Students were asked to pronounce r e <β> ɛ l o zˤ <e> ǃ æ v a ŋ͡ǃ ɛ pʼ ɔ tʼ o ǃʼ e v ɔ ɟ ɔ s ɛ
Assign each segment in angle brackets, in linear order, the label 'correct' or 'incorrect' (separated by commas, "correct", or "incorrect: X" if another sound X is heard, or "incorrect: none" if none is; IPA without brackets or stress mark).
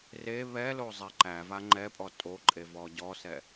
correct, incorrect: ɛ